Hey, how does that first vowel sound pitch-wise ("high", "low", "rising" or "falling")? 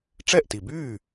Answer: falling